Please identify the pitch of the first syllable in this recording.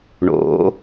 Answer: rising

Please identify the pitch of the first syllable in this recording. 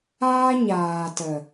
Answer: high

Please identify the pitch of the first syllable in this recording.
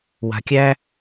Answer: low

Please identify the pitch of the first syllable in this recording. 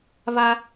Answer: high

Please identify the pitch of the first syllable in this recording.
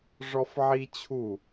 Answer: high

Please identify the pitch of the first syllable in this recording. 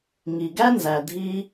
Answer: low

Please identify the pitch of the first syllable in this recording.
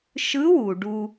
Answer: rising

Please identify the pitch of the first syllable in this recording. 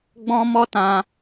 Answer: high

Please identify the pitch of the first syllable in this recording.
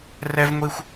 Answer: high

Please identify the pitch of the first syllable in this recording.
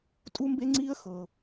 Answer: high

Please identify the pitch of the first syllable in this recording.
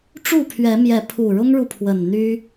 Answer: falling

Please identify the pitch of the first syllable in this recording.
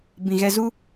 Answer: low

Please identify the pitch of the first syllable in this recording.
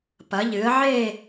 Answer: rising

